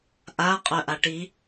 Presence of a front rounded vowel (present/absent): present